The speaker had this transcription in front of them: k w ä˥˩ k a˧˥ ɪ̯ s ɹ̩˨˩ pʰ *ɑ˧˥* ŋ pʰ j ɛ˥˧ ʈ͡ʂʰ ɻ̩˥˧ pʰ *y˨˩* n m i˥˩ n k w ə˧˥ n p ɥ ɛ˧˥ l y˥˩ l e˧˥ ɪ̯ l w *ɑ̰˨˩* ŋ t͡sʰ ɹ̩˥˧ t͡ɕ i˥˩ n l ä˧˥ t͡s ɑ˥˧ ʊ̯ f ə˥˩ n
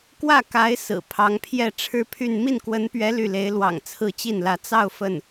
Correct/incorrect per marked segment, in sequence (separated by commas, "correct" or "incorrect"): correct, incorrect, correct